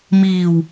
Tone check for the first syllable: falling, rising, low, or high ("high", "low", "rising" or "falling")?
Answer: low